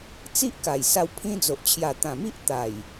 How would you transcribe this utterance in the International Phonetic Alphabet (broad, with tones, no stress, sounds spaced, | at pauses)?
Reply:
t͡s i˦ ʔ k a˨˩ j s a˧ w pʰ ĩ˧ d͡z o˨ ʔ t͡ɕʰ j a˨˩ t̪ ã˨˩ m i˦ ʔ t̪ a˨˩ j